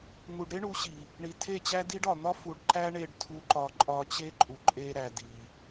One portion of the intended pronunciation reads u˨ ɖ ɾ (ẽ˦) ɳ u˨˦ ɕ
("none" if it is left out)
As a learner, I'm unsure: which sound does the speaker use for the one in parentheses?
e˦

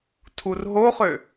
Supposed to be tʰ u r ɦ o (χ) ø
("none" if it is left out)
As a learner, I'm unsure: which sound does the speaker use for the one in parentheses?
χ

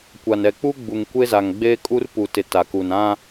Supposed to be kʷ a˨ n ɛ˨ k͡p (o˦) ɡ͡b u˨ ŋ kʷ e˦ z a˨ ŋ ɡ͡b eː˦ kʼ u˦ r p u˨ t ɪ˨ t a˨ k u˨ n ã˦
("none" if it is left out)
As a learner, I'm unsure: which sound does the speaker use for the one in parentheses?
u˦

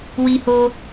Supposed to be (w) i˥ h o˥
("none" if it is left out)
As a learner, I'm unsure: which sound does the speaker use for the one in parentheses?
w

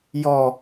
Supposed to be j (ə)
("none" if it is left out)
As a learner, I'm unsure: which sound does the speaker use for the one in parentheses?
ɔ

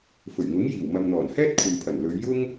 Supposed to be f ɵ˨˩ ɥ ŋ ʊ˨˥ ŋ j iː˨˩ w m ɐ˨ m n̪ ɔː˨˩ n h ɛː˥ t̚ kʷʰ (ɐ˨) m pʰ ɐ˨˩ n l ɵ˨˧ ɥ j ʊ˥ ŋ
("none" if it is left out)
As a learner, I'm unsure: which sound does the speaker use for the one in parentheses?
ɐ˨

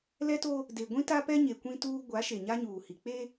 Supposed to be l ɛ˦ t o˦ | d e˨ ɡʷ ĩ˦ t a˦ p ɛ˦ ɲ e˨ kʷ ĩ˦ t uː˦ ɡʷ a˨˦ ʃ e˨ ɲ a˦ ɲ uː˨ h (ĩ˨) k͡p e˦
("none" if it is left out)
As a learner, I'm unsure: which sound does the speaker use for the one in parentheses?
i˨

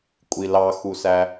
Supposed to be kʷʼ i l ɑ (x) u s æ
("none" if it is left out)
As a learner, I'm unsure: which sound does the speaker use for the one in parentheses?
x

